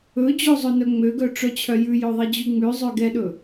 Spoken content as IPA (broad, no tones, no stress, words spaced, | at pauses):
ɵd͡ʑo zˤɵnœŋ͡møɡœ ʈ͡ʂœt͡ɕʰœjʉjɵ ðˤid͡ʑʉŋ͡mʉzˤø ɡɛɗɵ